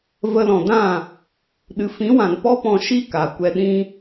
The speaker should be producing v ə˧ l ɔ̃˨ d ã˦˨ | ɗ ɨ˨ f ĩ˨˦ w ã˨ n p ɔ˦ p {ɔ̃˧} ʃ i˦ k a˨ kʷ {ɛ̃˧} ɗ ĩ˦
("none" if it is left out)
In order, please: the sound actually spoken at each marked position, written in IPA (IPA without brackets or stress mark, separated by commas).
ɔ̃˧, ɛ˧